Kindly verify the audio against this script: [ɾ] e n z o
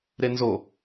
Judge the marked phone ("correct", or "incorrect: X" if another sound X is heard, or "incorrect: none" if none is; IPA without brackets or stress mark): correct